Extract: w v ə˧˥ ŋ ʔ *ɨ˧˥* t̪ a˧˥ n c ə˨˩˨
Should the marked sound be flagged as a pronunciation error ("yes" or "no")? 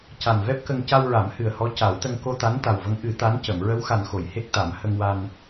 yes